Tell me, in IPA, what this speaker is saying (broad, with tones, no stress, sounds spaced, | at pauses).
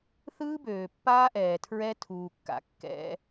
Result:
θ ɯː˦ b øː˨ pː aː˦ ʔ ɛː˨ tʰ ɹ ɛ˦ tʰ uː˨ kː a̰˨ kː ɛ̰˦